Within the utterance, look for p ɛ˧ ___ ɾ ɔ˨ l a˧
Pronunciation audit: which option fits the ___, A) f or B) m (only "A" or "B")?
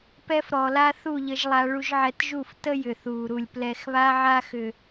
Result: A